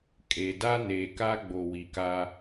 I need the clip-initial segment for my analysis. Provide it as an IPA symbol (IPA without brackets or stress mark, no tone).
kʼ